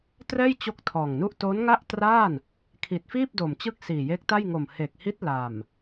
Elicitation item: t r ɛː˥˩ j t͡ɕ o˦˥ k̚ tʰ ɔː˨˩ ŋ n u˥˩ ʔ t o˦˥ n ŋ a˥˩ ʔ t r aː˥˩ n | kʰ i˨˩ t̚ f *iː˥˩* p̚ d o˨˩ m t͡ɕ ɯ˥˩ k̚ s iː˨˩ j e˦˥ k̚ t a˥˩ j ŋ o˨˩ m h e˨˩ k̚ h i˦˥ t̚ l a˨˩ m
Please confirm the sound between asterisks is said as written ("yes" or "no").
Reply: yes